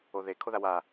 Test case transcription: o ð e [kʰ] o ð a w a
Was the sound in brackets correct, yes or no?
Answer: yes